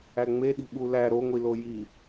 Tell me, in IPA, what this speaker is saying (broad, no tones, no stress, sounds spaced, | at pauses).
æ ŋ͡m e ɗ i̤ ɓ u l æ ɾ o ŋʷ i l o j i